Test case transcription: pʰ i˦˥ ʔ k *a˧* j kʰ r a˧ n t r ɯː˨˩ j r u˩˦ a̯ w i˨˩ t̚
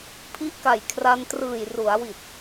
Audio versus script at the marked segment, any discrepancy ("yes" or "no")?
yes